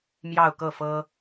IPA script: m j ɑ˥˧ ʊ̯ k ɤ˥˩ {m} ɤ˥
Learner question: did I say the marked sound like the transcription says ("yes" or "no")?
no